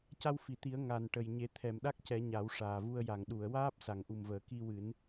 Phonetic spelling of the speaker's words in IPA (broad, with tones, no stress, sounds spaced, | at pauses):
c a˧ w f i˨˩˨ t̪ i˨˩˦ ə̯ ŋ a˨˩ n ʈ ə˨˩ j ɲ e˨˩˦ t̪ʰ ɛ˨˩˨ m ɗ a˦˥ k̚ c ɛ˨˩˦ ɲ a˨˩˦ w ʂ aː˨˩ v u˧ ə̯ j a˨˩˨ ŋ ɗ u˨˩˨ ə̯ w aː˦˥ p̚ s a˨˩˨ ŋ ʔ u˨˩ m v əː˨˩˨ k i˧ w ɨ˨˩˦ n